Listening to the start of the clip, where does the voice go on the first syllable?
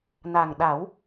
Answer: low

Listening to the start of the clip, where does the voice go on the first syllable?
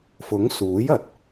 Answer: rising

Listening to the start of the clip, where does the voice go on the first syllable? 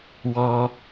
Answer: low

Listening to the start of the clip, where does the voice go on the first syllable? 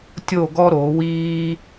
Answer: falling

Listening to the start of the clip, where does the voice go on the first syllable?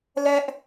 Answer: high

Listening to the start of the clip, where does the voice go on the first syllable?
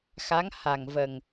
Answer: rising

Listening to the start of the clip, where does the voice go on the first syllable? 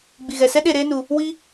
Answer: low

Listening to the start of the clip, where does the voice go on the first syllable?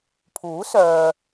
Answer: rising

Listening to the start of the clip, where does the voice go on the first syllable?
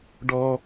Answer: low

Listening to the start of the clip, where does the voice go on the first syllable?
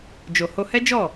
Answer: low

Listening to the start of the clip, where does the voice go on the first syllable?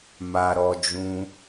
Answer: low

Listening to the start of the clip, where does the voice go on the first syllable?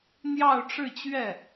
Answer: falling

